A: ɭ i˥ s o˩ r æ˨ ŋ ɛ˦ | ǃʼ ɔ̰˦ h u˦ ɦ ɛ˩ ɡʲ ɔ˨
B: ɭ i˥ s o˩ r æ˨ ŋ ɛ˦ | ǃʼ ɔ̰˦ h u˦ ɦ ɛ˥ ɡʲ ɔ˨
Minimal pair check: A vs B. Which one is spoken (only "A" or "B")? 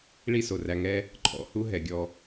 A